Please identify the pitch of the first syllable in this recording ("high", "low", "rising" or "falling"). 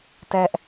high